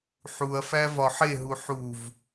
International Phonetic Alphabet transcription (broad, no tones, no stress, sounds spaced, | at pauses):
ħ u ɐ̯ f æ v ɒ ħ e ɦ u ħ u v